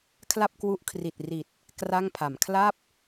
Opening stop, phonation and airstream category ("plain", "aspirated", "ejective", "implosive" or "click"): aspirated